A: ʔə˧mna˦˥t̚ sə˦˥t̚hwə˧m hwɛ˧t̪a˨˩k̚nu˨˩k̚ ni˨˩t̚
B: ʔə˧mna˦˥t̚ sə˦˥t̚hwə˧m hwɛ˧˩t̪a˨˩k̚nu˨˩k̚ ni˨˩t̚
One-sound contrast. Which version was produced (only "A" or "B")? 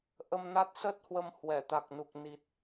B